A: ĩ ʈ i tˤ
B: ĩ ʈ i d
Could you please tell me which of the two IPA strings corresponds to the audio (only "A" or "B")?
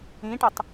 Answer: A